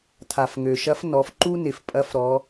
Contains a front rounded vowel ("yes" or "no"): yes